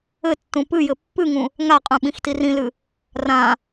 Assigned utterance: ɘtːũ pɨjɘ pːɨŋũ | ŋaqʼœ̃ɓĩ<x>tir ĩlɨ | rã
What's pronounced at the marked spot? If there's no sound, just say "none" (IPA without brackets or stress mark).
x